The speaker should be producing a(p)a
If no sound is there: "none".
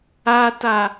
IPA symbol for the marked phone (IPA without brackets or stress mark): t